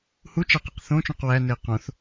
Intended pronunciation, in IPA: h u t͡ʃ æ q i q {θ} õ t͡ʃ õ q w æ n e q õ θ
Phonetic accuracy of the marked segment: correct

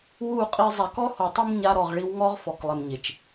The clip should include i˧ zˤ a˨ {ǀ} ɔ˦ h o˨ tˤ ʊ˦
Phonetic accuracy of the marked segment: incorrect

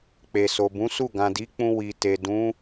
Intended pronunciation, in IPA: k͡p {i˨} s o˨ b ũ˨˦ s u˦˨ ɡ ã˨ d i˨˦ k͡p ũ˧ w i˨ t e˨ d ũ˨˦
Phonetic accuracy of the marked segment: incorrect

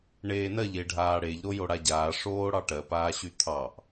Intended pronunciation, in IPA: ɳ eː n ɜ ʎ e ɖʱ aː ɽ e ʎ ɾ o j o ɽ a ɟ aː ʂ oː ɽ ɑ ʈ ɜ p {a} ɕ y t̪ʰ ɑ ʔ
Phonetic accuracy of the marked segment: incorrect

